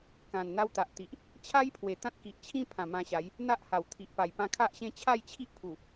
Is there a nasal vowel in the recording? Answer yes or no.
yes